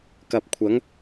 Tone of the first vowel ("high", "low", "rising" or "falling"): low